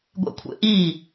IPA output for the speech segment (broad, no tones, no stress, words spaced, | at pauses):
ɡʷḛkʷʰḛʔi